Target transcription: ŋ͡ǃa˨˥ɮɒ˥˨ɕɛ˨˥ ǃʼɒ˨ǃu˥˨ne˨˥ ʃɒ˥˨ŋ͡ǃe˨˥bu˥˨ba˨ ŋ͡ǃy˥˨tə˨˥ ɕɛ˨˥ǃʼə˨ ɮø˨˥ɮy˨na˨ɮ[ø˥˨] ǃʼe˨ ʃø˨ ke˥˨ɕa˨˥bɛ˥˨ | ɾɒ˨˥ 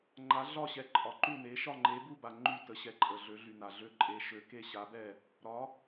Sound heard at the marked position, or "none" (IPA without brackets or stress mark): ø˥˨